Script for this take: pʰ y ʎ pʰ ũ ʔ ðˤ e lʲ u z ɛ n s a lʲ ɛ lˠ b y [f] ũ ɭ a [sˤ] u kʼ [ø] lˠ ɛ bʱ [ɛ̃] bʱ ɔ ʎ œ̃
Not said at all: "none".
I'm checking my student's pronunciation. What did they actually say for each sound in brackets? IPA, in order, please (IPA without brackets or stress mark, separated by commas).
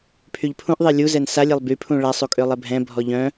pʰ, sˤ, ø, ɛ̃